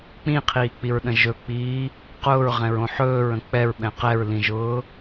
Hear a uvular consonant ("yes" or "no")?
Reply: yes